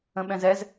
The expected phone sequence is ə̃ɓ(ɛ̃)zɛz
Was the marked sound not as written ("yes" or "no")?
no